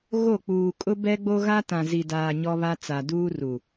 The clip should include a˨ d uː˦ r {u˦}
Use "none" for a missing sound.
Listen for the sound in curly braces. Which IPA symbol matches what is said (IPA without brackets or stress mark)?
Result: u˨